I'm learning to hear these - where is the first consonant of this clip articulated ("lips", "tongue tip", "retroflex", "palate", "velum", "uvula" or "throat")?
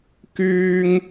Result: velum